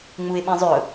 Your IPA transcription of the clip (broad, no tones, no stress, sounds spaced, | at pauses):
ŋ͡m u ɪ̯ ɓ ĩ zˤ ʏ ʊ̯